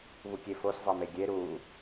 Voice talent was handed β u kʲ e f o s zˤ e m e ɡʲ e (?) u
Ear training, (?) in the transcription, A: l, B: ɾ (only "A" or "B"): B